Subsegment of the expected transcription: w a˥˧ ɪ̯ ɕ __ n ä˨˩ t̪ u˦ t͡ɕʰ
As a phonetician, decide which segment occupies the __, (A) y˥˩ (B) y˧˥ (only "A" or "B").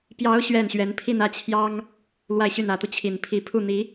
A